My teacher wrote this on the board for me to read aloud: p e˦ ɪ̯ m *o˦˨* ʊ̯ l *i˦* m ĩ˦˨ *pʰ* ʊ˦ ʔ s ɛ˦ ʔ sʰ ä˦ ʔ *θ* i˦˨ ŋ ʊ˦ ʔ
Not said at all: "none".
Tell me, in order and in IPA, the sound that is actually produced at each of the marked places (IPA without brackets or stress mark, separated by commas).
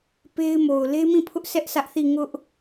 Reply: o˨, e˦, pʰ, θ